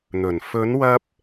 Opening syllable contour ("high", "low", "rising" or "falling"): low